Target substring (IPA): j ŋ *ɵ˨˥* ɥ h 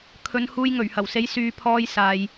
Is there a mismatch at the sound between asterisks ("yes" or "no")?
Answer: yes